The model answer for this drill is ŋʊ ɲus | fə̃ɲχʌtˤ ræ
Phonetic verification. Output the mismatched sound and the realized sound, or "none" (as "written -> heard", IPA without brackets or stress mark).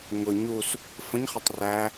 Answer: none